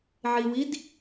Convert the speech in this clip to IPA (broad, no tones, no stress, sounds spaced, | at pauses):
ʕ i w i d